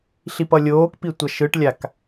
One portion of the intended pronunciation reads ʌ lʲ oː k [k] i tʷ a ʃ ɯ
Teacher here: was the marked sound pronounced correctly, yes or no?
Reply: no